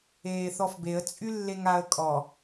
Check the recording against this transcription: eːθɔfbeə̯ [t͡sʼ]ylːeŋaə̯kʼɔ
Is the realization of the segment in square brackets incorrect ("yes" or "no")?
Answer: no